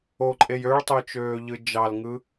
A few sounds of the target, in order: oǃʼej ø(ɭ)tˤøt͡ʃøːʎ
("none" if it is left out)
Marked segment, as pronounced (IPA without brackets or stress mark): ɭ